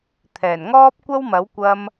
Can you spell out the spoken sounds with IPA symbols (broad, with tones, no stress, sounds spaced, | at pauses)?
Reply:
t̪ʰ ɛː˨˩ n ŋ ɔː˥ p̚ kʷ ɐ˥ w m ɐ˨˥ w kʷ ɐ˧ m